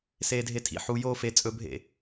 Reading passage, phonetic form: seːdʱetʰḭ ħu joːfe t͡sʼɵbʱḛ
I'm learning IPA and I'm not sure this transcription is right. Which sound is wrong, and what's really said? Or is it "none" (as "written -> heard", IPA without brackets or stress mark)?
none